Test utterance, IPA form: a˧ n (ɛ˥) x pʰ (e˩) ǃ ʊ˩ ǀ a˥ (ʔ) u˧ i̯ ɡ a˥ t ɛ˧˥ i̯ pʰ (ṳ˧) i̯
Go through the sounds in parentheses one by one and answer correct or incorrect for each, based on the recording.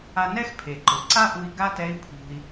correct, correct, correct, correct

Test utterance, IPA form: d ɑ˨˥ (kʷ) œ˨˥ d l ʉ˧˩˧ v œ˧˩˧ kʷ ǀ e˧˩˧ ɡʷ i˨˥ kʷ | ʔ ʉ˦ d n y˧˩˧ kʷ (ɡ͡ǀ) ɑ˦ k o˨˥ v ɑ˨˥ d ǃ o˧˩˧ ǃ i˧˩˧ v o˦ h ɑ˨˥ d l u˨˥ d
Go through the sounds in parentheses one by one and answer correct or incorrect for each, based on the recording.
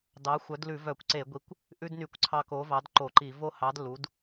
incorrect, incorrect

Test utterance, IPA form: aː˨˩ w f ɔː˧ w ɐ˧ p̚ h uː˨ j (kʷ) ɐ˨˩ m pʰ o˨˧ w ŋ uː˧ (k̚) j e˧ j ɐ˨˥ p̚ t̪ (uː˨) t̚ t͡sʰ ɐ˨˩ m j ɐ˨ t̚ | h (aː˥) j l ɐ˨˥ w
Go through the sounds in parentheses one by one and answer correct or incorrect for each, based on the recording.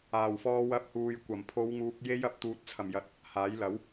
correct, correct, correct, incorrect

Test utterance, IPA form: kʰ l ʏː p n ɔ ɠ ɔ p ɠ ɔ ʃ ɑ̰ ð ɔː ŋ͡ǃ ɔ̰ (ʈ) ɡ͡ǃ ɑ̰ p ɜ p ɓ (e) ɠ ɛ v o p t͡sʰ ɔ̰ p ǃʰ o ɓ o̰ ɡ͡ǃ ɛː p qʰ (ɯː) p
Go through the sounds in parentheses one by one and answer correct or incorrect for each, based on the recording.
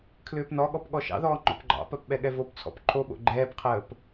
incorrect, incorrect, incorrect

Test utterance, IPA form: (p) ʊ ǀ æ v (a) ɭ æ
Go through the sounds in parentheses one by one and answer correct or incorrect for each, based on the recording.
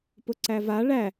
correct, correct

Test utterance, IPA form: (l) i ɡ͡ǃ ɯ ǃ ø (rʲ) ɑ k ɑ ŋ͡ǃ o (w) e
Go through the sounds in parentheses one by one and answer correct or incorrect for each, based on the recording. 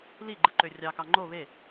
correct, correct, incorrect

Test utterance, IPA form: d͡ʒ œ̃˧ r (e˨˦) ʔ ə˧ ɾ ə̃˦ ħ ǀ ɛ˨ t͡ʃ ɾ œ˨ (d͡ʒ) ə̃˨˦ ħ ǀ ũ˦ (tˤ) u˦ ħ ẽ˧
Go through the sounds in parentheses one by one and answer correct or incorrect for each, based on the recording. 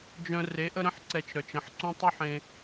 correct, incorrect, correct

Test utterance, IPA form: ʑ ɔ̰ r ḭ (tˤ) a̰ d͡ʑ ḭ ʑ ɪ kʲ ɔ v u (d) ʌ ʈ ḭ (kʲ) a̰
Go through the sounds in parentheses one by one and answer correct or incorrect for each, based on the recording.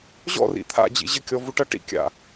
incorrect, incorrect, correct

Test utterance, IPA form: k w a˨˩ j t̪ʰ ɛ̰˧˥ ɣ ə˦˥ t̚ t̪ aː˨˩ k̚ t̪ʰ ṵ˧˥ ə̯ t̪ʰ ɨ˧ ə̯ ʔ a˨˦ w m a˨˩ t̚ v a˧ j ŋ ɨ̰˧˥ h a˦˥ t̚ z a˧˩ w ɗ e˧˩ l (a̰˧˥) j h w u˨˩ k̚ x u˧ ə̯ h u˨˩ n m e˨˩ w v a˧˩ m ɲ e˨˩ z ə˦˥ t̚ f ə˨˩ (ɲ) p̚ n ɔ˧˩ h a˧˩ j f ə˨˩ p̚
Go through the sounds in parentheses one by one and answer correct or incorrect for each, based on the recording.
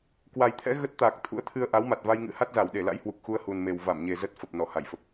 correct, incorrect

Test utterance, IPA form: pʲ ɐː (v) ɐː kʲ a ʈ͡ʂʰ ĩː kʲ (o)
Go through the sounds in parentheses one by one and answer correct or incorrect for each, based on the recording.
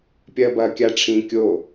incorrect, correct

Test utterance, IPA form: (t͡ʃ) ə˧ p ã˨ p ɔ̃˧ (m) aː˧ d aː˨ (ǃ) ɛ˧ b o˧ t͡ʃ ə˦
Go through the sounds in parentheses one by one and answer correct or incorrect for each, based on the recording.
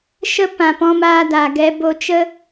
incorrect, correct, incorrect

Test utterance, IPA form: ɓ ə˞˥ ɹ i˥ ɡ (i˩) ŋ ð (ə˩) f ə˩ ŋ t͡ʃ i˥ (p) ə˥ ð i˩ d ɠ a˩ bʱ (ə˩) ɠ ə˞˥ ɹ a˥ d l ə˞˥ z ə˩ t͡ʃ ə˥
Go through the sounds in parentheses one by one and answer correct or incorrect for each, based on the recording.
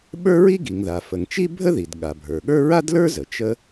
correct, incorrect, incorrect, incorrect

